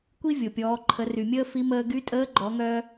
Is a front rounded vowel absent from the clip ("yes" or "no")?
no